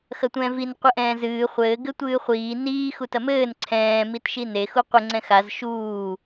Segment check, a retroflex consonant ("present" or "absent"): absent